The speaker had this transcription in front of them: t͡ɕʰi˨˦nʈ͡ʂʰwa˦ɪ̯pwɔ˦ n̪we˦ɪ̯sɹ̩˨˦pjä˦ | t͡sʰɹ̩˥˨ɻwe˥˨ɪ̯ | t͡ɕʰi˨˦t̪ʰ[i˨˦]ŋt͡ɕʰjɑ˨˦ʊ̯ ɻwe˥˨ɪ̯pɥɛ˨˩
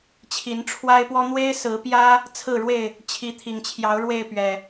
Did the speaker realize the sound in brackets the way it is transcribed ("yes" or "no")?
no